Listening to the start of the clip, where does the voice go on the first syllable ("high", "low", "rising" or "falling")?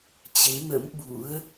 rising